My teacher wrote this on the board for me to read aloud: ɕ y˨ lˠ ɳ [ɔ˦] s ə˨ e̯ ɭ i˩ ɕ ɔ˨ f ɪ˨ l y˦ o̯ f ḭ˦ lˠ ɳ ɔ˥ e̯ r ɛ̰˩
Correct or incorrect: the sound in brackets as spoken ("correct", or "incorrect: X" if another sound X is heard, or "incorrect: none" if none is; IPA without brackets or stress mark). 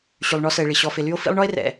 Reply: correct